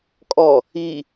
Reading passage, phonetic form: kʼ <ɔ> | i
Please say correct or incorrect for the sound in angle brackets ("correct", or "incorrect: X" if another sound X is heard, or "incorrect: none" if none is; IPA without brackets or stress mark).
correct